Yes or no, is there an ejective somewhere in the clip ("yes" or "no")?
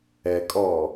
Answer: yes